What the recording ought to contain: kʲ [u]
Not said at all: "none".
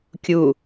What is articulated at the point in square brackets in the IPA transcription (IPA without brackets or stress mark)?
u